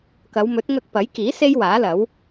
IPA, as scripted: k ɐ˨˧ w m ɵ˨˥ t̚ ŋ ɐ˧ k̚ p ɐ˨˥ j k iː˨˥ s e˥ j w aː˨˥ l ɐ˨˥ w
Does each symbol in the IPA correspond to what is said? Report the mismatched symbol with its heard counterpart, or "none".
none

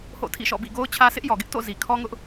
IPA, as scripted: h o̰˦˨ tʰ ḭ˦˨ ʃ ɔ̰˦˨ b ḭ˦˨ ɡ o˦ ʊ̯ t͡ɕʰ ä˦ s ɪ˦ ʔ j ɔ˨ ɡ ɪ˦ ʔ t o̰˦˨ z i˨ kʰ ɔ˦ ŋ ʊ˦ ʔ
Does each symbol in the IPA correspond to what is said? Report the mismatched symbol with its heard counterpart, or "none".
none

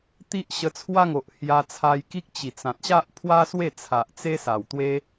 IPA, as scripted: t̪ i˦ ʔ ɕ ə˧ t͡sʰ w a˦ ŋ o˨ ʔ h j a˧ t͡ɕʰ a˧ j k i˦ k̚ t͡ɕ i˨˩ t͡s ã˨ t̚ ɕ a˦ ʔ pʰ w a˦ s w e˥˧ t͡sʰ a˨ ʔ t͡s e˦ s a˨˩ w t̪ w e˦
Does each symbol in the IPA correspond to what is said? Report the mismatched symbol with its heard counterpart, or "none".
t͡ɕʰ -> t͡sʰ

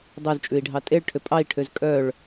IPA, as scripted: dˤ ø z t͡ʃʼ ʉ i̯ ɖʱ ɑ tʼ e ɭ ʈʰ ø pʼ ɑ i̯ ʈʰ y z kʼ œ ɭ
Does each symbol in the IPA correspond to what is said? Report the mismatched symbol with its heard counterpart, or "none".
y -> ø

